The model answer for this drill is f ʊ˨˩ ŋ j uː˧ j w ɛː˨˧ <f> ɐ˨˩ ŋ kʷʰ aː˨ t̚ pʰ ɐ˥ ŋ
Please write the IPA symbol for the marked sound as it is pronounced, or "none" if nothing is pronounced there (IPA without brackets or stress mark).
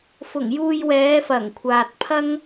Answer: f